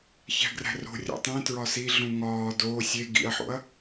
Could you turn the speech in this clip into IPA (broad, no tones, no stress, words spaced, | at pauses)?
çæ̤ɡræ̤ro̤ rʲo̰tˤẽ tɹɒsi ɮũŋɒː doː sʲe ɡḭɐ̯ħo̰ɐ̯